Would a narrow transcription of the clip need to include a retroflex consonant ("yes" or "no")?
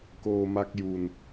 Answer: no